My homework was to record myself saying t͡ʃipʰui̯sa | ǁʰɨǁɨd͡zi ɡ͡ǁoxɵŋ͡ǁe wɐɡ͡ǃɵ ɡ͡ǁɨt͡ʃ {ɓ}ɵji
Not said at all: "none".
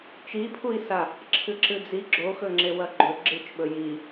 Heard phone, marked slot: ɓ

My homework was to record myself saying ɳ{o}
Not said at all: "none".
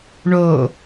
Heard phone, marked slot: o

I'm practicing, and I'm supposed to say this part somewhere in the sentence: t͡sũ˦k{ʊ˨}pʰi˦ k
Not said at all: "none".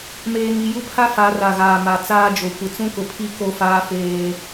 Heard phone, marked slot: ʊ˨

